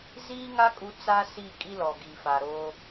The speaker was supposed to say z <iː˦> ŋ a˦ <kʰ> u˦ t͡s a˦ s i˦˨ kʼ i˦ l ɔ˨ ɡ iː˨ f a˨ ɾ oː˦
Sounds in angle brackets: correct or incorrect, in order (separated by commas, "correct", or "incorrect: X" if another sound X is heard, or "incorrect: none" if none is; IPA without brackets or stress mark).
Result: correct, incorrect: kʼ